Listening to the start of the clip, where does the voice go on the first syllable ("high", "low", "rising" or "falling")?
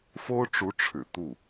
high